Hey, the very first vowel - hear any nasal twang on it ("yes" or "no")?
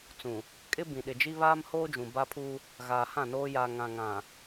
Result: yes